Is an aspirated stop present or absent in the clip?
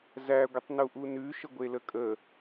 absent